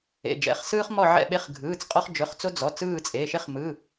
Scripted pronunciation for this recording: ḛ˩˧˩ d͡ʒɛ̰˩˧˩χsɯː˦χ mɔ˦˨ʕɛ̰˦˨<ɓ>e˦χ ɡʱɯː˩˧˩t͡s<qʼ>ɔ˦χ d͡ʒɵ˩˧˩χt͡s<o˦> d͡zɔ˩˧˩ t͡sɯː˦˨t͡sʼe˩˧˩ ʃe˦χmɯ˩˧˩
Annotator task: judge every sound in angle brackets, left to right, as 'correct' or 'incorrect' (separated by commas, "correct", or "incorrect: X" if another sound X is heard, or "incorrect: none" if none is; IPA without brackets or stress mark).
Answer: correct, correct, correct